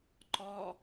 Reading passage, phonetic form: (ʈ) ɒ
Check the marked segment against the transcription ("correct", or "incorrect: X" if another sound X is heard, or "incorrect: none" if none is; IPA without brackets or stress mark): incorrect: ǃ